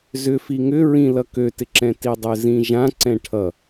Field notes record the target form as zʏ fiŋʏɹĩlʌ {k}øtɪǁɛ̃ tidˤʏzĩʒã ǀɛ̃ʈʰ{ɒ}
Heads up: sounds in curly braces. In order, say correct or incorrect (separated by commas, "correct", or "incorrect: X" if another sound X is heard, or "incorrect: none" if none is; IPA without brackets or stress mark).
correct, incorrect: ʌ